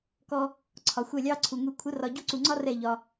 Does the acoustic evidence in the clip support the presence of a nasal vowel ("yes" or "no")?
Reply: no